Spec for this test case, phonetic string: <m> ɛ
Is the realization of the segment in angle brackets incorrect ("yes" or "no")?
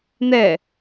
yes